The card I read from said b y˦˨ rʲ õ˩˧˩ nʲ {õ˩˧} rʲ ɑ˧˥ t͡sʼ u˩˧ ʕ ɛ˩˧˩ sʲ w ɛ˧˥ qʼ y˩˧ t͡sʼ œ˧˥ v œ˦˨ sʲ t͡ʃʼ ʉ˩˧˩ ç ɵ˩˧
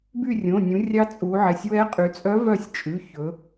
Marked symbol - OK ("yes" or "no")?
no